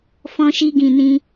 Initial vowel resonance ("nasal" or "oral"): nasal